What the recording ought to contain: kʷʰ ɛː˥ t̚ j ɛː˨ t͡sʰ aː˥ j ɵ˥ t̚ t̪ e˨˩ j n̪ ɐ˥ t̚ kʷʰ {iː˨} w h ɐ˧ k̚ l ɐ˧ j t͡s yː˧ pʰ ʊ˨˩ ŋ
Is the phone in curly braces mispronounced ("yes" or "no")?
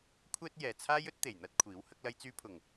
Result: yes